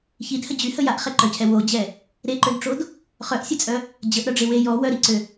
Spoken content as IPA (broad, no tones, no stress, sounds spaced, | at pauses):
ç i d h ə d͡ʑ y h ə j a ʔ χ ɛ ǃ œ cʰ ɛ w o d͡ʑ ɛ | ɾ e ǃ ø d ʈ͡ʂ o d | χ œ ʔ sʲ ə t͡sʼ œ | d͡ʑ ə ʔ ɾ œ ɖ͡ʐ e w e j ɔ w œ ɾ i ǀ ø